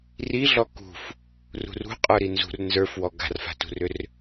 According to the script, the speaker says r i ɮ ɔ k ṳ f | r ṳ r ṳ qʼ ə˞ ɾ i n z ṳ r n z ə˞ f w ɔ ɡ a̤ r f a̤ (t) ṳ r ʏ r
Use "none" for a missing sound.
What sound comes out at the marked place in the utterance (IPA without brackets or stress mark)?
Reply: t